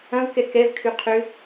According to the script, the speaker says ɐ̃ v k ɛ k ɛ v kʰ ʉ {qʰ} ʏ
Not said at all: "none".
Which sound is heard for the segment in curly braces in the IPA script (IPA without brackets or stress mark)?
qʰ